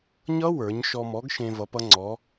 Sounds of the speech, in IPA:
ɲʌ˦˥wə˞˩˧ɲ ʃɔ˧mɔ˨˥ɡʃẽ˧ vʌ˨˥pʌ˦˥ŋ͡ǀɔ˨˥

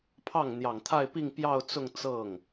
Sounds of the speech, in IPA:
pʰɑ˥˩ŋ n̪jɑ˨˩ŋ t̪ʰa˥˧ɪ̯pi˥˧ŋ pjɑ˥˧ʊ̯t͡sʊ˥˧ŋ t͡sɤ˥˩ŋ

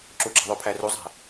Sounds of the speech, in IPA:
ǁuɡ͡ǁɑ̤ ðˤopʰæruzˤæ̤

